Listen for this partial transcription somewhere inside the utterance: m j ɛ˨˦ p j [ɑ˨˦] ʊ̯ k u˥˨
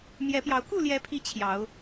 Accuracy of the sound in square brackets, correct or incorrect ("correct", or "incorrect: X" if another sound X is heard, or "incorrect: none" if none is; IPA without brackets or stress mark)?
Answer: correct